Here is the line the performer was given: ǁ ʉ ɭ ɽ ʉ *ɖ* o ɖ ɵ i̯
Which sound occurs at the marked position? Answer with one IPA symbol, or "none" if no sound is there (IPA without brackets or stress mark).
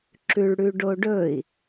ɖ